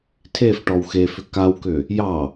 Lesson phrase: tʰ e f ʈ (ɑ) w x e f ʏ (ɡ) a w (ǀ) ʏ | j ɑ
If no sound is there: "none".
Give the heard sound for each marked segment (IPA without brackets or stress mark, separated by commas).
ɔ, k, k